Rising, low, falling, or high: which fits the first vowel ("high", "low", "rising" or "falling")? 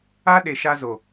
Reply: high